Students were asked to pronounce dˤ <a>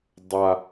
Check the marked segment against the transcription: correct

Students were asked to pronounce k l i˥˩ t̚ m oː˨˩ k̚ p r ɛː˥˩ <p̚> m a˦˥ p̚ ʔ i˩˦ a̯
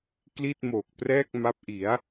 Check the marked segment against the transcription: incorrect: k̚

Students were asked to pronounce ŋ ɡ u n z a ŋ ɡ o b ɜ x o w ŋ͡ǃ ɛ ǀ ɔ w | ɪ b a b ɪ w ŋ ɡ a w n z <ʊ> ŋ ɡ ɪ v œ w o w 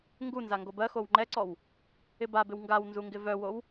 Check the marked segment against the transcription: incorrect: u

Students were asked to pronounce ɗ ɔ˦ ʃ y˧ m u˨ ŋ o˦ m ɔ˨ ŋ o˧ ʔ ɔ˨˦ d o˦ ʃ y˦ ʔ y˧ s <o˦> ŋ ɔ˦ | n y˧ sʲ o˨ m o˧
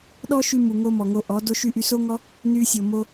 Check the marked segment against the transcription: correct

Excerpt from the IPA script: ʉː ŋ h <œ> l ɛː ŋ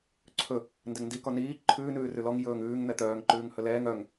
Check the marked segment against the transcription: incorrect: ɵ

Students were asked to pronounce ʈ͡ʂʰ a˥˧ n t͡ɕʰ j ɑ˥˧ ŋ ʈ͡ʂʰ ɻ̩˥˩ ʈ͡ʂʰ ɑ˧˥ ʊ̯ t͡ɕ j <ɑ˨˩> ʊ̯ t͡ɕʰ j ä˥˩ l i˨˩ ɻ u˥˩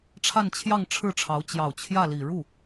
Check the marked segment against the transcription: correct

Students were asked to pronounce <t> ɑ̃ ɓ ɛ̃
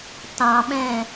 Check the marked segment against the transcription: correct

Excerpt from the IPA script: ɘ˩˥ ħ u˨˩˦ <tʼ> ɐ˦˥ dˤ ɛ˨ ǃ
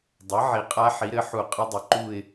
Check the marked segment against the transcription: incorrect: qʼ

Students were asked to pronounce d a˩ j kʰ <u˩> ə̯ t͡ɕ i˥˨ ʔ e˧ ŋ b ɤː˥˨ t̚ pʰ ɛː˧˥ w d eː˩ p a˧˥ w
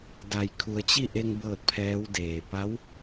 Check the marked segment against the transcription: incorrect: u˩˧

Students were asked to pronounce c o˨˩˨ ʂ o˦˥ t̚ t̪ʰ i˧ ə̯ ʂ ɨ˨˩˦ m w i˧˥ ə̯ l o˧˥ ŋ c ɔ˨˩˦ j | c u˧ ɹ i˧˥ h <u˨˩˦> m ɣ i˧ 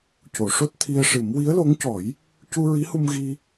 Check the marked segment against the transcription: incorrect: u˧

